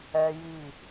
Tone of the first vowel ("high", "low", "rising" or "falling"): high